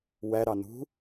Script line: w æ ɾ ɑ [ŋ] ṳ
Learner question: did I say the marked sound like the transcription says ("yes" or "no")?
no